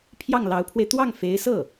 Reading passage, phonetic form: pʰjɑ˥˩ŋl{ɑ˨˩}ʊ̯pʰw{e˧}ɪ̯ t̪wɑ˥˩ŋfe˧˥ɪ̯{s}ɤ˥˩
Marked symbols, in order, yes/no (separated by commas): no, yes, yes